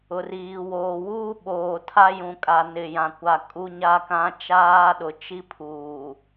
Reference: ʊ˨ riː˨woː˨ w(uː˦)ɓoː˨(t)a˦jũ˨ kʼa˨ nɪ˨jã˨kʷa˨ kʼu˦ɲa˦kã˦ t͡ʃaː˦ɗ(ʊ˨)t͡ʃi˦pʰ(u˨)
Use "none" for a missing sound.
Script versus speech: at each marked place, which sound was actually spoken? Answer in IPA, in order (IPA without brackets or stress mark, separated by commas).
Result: uː˦, tʰ, ʊ˨, uː˨